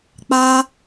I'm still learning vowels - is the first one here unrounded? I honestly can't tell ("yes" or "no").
yes